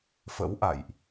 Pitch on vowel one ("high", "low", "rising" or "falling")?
rising